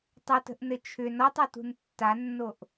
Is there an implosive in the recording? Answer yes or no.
no